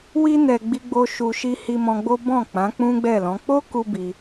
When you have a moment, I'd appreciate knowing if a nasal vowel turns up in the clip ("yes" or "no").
yes